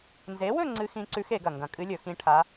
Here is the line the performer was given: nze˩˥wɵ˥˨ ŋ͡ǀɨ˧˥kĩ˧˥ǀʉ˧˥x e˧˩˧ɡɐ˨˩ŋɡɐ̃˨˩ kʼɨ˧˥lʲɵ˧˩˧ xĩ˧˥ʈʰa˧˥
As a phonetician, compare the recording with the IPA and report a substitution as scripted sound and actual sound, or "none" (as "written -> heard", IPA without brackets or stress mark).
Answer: k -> x